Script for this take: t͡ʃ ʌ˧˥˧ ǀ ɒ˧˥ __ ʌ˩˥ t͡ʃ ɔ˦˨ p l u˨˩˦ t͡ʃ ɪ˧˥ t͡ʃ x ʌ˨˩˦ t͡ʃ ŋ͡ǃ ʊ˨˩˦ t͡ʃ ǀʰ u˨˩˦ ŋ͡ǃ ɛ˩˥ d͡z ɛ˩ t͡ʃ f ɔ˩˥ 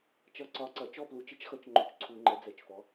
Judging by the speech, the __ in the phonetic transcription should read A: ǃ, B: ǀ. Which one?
B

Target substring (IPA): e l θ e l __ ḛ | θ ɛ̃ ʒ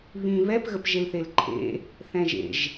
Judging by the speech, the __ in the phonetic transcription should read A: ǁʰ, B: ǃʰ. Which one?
B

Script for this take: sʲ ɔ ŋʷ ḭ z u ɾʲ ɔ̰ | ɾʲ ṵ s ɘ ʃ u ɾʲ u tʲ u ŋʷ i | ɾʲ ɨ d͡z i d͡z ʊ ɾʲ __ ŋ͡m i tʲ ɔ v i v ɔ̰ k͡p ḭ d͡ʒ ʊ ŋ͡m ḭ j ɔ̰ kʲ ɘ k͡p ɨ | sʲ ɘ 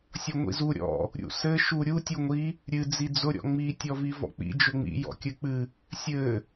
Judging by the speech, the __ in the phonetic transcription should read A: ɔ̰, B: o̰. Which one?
A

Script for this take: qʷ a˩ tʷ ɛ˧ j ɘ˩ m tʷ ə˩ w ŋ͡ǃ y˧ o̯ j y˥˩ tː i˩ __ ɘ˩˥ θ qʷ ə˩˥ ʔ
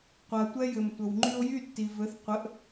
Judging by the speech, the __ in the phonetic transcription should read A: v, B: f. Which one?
A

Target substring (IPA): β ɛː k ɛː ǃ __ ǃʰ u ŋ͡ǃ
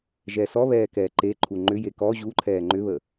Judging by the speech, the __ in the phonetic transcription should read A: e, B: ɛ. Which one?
A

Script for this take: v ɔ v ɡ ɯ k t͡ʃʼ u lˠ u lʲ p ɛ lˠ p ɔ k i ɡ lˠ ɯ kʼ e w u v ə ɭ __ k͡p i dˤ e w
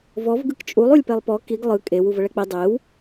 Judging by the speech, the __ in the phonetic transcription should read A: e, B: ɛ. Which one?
B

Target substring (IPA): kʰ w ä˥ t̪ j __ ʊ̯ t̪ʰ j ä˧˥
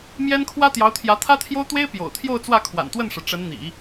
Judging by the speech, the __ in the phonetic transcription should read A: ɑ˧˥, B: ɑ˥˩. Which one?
A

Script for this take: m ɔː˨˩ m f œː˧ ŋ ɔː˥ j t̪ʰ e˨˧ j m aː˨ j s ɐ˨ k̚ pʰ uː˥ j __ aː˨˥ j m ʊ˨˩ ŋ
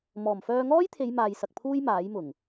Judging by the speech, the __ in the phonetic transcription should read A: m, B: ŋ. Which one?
A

